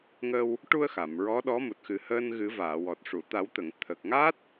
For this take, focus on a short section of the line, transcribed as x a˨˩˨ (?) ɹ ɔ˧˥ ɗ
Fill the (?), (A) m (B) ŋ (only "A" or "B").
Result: A